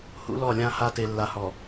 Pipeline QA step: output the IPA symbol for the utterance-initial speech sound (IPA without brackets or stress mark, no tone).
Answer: h